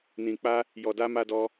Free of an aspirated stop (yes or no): yes